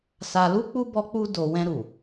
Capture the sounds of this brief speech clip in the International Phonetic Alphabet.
s a˧ l u˦ k͡p u˦ b ɔ˧ k͡p u˧ d o˨ w ɛ̃˧ ɾ u˨

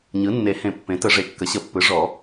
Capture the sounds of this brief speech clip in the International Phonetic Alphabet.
ɲ ɯ˩˥ nː e˨˩˦ h ẽ˨˩˦ pː ẽ˩˥ t ə˨˩˦ ʐ e˩˥ kː ə˩˥ ɕ ə˨˩˦ pː ɯ˩˥ ʐ ɔ˨˩˦

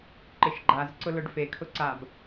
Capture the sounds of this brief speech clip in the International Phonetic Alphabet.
ǃ ɪ ʃ ɡ͡ǃ a z ǀ ʊ l ʊ ɖ f e kʰ ʊ ǀ a b

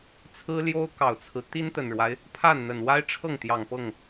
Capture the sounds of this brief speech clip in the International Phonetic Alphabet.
t͡sʰ ɹ̩˥ l j o˥ ʊ̯ k ɑ˨˩ ʊ̯ t͡sʰ ɹ̩˦ t̪ i˥ n t̪ ə˨˩ n ɻ w a˦ ɪ̯ | pʰ a˥˩ n n̪ ə˨˩ n w a˥ ɪ̯ ʈ͡ʂʰ ɤ˥˩ ŋ t̪ j ɑ˨˩ ŋ p ɤ˥˩ ŋ

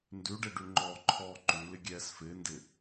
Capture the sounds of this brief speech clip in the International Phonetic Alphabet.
n d ʉ ɖ e ɖ ʉ ŋ͡ǃ ɔː ǃʰ ɔː ǃ ʉ l ɪ ɡʲ ɛː s f ɪː n d ɪ

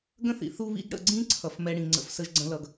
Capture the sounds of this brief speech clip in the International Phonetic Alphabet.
ɡ ə̃˦ θ ḭ˨ θ u˦ β ḭ˦ ɡ ɽ ə̰˦˨ ɡ͡ǀ ĩ˦ ǀʰ ʌ˨ f m ɛ˦ ɽ ĩ˨ ŋ͡ǀ ə̰˦ f s ə˦ ʒ ɡ͡ǀ ə̃˦ l ʌ˨ ɡ

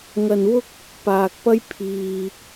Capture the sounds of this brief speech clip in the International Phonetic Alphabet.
ŋ ɐ˧ n w ʊ˥ k̚ | p aː˨ k̚ p ɐ˥ j pʰ iː˧

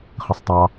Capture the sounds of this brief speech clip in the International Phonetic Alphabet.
χ ə sˤ tˤ ɑ

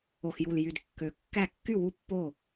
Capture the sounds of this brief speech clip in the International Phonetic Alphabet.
o˨˩ x j u˨˩ l j y˨˩ d kː ø˨˩ kː æ˥˩ kː y˥˩ w u˥˩ pː o˥˩

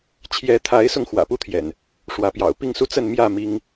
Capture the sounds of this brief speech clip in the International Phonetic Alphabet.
t͡ɕʰ j ɛ˨˦ t̪ʰ a˨˦ ɪ̯ s ʊ˧ ŋ x w ä̰˨˩ p u˥˨ t̪ʰ j ɛ̰˨˩ n | ʂ w ä˨˦ p j ɑ̰˨˩ ʊ̯ p i˥˨ ŋ s u˦ t͡s ə˥˨ n m j ä˥˨ m i˦ ŋ

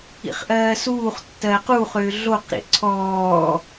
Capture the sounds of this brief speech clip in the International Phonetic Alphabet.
ḭ χ ʔ ɜː s uː χ tː ɜː q u χ ʏː ɮ o q ɾ ḭ ʔ ǀʰ ɔː

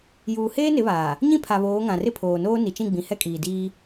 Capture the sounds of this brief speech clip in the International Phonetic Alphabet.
j uː˨ h eː˦ n ɪ˨˦ β aː˨ | ɲ ĩ˦ pʰ a˨ β oː˨˦ ŋ ã˨ r ɪ˦ pʰ oː˨ n oː˦ n i˨ t͡ʃ ĩ˦˨ ɡ͡b ĩ˨ h ɛ˦ kʼ iː˨ d iː˦

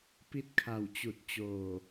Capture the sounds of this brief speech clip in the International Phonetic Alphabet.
p i˥˨ t̚ kʰ a˧˩ w t͡ɕ u˧˩ t̚ t͡ɕ oː˧˩

